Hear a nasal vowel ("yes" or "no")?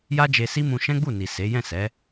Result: yes